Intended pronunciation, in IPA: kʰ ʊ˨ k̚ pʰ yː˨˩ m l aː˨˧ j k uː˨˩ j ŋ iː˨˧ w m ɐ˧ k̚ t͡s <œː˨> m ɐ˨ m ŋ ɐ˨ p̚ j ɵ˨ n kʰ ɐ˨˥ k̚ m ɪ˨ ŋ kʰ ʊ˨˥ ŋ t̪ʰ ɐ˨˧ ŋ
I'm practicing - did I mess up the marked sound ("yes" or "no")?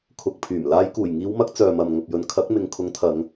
no